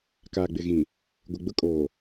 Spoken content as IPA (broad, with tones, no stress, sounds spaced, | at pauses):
k aː˨ ɡ͡b ɪ˨ ɣ ĩ˨ | ɡʷ ɪ˨ ɡ͡b ʊ˦ kʼ oː˨